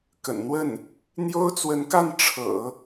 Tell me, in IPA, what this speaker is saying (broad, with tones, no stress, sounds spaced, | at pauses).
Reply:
k ə̰˨˩ n n̪ w ə˥˩ n | n̪ j o˥ ʊ̯ t͡s w ə˧˥ n k a˥˩ n ʈ͡ʂʰ ɤ̰˨˩˦